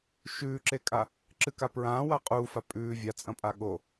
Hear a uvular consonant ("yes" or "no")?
yes